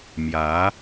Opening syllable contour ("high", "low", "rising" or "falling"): rising